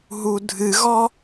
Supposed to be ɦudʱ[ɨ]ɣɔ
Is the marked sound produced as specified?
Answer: yes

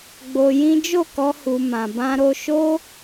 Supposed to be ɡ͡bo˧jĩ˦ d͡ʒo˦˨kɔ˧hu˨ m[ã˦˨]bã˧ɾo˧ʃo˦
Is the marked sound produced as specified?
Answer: no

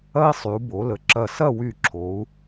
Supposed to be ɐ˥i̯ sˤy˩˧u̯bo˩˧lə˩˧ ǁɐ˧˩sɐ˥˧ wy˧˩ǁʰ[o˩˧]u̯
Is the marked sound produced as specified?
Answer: yes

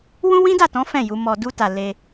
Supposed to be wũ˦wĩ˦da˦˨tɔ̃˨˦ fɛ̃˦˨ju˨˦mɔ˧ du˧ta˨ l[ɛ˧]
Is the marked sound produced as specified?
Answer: no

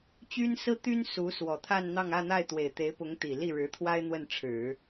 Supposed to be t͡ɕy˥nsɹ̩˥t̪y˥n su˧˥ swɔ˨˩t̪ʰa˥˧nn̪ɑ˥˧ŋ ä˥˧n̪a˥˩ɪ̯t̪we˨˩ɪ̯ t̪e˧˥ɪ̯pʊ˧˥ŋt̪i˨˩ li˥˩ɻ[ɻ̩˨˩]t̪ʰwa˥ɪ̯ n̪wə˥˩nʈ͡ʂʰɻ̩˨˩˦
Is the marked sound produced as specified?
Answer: no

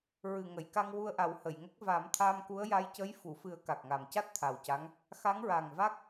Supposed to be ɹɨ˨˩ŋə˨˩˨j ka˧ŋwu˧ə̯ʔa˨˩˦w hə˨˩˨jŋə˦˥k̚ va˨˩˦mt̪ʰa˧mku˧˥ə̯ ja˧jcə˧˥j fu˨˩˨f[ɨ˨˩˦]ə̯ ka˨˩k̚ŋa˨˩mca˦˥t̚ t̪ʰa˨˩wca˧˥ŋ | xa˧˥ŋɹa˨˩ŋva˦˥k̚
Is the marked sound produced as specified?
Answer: yes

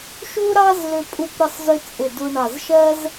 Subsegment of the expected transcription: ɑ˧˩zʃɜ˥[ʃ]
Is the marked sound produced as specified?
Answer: no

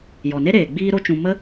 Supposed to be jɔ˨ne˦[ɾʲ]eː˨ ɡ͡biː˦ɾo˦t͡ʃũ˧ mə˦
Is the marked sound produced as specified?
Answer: no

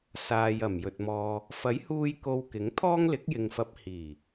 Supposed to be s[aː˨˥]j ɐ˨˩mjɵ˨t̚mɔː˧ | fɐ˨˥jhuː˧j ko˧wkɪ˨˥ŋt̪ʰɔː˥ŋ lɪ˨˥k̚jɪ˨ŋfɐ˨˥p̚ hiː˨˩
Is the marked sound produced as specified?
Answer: no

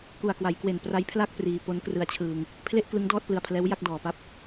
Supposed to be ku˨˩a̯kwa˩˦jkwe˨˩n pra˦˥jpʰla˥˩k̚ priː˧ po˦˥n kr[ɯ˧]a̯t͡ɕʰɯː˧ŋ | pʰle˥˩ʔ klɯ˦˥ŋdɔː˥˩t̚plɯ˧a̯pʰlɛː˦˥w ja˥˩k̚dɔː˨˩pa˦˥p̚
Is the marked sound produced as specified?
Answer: yes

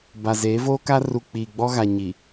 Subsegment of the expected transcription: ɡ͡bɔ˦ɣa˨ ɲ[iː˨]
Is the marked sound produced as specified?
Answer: no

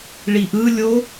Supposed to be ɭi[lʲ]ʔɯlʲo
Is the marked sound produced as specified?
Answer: no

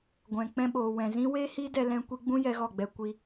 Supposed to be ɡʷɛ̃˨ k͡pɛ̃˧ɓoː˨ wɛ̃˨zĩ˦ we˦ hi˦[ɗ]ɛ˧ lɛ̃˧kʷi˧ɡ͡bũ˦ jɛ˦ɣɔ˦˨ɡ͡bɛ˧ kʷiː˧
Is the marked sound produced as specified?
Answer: no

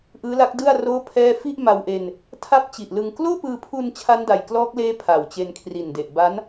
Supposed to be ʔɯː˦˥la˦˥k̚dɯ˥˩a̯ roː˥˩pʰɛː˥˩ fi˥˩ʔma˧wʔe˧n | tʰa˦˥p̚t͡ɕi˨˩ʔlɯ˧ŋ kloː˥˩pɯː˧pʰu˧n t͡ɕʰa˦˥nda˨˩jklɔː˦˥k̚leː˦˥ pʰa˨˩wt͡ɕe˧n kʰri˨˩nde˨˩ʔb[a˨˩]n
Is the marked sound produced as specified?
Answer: no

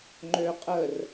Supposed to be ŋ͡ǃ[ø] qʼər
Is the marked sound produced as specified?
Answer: yes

